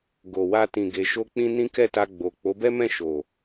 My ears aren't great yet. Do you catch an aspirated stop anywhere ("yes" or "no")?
no